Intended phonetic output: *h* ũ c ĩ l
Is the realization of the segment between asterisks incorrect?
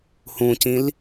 no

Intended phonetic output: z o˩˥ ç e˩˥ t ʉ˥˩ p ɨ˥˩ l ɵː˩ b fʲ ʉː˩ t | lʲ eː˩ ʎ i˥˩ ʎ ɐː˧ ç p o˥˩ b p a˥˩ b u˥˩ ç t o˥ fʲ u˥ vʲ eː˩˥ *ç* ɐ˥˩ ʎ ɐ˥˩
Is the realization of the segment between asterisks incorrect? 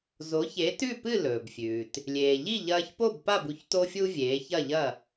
no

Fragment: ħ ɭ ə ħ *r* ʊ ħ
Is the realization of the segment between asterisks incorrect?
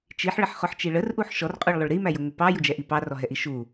yes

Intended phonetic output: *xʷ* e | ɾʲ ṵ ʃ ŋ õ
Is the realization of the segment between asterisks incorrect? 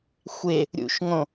no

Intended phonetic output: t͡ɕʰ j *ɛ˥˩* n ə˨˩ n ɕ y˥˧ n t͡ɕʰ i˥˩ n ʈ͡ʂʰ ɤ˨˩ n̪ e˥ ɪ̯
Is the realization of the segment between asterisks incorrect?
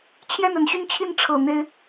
no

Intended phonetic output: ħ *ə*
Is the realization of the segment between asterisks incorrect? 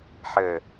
no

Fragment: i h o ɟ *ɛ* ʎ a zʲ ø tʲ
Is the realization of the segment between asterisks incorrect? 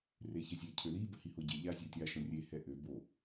yes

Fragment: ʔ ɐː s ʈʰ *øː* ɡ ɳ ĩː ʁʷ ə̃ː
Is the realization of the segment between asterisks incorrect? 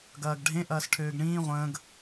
no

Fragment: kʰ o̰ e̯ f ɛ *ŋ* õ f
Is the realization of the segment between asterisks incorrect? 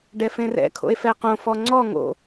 yes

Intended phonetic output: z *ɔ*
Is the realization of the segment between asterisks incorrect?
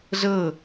yes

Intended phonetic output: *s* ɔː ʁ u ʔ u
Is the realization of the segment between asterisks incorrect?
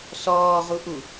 no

